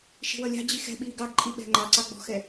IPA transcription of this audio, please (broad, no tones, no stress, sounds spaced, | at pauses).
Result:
ʃ i̤ w ʌ lʲ ɑ̤ d͡ʑ i x ɛ̤ ɓ iː ɡ ɑ ɡ ǃʼ i ɓ ɛ̤ ŋ͡ǃ ɑ ǀ ɑ ɡ͡b ɔ̤ x ɛ